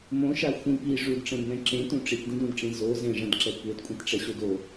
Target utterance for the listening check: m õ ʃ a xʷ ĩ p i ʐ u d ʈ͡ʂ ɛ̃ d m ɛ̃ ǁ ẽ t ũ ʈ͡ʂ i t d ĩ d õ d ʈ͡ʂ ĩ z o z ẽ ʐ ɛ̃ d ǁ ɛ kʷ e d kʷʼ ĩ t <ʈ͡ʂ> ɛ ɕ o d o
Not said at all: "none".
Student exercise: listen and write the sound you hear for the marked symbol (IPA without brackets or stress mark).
ʈ͡ʂ